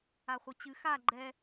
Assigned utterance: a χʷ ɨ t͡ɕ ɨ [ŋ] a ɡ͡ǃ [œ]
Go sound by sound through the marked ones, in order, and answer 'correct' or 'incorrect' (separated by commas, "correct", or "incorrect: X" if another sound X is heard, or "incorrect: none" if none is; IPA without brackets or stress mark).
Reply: incorrect: x, incorrect: ɛ